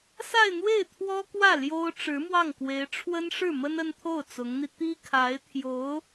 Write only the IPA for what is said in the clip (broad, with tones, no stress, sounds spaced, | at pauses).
s a˥˧ ɪ̯ n̪ w e˥˩ ɪ̯ t̪ʰ w ɔ˥ k w ä˥˩ l j o˥ ʊ̯ ʈ͡ʂ ɻ̩˧˥ m w ɑ˥˩ ŋ k w e˧˥ ɪ̯ ʈ͡ʂʰ w ə˥ n ʂ ɻ̩˥˩ m ə˥ n ə˥ n t̪ʰ o˥˩ ʊ̯ t͡s ʊ˧˥ ŋ n̪ i˧ t̪ i˥ kʰ a˧˥ ɪ̯ t̪ʰ j o˧˥ ʊ̯